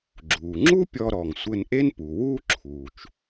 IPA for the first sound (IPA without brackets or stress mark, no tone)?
ɡ͡ǁ